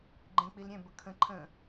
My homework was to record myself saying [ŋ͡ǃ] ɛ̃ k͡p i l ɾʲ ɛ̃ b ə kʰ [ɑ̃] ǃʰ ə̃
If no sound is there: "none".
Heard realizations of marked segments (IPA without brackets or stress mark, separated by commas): ɡ͡ǃ, ə̃